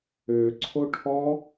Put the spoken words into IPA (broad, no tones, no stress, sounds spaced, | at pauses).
ø ǀʰ o ʈʰ ɔ